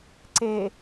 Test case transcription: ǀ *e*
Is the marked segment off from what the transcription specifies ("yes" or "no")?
no